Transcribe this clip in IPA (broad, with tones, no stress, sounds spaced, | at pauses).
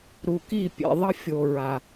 ɾ u˨ k i˦˨ pʲ ḛ˨ ðˤ ʌ˦ fʲ o˨ ɹ a˨